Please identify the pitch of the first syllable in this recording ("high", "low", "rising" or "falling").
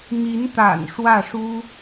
rising